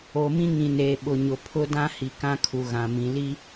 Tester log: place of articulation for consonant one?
labial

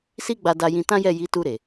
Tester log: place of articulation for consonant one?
alveolar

